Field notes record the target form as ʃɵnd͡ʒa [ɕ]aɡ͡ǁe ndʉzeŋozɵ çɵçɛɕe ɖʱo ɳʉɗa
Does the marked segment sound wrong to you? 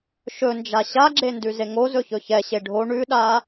no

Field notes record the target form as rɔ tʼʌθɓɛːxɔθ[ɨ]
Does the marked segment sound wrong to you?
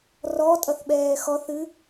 no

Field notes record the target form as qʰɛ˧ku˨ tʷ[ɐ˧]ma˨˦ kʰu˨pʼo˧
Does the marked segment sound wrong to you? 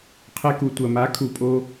yes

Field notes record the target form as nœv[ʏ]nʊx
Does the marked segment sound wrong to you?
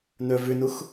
no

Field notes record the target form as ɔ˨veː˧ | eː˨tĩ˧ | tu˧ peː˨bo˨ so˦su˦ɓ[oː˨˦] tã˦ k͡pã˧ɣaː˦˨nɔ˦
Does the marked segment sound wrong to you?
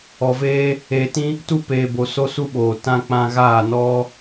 yes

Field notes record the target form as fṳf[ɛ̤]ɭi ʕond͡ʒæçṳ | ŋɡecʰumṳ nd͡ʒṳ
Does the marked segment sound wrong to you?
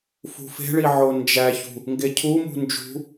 yes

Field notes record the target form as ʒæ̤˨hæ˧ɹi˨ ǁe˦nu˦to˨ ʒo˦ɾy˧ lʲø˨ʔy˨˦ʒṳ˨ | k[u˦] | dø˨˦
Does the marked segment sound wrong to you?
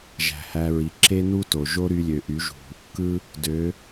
yes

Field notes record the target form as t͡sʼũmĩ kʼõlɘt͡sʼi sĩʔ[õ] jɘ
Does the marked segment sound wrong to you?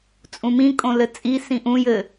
yes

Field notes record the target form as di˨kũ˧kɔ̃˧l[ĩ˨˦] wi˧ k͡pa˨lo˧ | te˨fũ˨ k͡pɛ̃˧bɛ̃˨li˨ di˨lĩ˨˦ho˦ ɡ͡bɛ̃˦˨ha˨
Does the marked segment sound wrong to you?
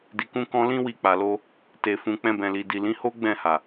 yes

